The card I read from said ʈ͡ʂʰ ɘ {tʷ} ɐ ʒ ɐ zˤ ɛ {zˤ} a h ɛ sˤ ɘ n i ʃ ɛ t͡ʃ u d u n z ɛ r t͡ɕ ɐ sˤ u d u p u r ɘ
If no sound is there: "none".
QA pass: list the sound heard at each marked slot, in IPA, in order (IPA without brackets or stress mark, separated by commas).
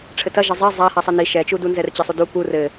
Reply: t, zˤ